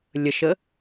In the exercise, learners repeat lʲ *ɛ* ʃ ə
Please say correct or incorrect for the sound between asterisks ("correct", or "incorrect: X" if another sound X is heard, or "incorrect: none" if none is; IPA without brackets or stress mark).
incorrect: ə